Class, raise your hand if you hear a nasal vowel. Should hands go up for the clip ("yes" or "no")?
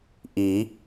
no